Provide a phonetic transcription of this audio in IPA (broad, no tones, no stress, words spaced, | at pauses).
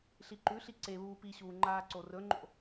ɬiǃʉɬi ǀe βuːpiɕuː ŋ͡ǃaːǀorɵŋ͡ǃo̰